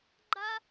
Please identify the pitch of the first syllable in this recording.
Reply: high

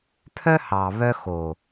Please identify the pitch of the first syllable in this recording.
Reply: high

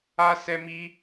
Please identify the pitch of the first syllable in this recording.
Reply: high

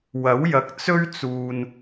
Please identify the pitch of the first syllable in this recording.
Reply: rising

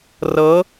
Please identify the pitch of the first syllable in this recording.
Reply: rising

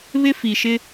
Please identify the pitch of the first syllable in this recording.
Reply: high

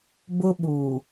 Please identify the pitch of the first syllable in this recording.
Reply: high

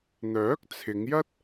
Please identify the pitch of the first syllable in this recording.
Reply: rising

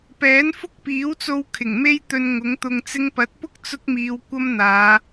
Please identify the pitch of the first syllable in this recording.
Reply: rising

